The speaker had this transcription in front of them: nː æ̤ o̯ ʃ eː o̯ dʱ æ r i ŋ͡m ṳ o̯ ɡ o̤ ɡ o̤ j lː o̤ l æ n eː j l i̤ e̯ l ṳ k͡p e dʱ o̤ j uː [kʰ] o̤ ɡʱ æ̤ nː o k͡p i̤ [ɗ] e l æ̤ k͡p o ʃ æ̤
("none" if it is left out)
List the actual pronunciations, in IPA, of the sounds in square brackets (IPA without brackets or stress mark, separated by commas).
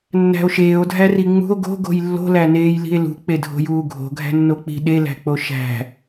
ɡʱ, ɗ